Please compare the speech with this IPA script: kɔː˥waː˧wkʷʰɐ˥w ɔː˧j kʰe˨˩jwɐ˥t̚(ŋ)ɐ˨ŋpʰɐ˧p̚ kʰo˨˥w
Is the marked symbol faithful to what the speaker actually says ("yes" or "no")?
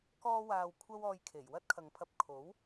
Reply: no